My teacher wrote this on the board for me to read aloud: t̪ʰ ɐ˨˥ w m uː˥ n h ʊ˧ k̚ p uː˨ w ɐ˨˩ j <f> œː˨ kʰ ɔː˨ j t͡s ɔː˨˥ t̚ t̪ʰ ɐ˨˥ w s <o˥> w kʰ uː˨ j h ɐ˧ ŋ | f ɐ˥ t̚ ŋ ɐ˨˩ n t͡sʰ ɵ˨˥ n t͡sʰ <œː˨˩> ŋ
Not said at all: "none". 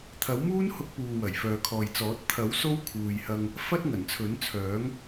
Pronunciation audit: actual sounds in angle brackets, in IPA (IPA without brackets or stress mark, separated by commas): f, o˥, œː˨˥